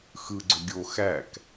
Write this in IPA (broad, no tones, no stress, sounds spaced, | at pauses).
x ɯ ɡ͡ǀ ø ɡʲ o x æ k